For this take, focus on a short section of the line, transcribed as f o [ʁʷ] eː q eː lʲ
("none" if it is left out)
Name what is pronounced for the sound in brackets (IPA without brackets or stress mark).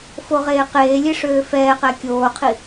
ʁ